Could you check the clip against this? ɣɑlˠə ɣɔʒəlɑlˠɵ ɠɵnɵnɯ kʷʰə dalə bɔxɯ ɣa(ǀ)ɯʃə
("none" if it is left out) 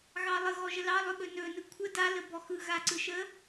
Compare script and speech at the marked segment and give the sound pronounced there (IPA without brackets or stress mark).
ǀ